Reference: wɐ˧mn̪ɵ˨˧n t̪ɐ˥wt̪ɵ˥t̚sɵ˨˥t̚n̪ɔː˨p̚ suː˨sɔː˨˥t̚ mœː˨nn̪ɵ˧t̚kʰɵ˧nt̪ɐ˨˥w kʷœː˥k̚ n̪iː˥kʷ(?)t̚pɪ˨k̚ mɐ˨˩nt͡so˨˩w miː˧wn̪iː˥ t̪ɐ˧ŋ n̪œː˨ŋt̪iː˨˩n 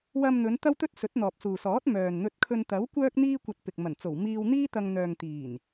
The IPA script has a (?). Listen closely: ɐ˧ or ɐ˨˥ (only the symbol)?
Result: ɐ˧